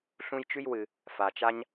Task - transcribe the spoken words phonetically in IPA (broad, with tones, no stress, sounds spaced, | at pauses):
ɬ ũ˦ j t͡ʃ ʉ˥ j w ɨ˨ | f a˨ t͡ʃ a˥ ɲ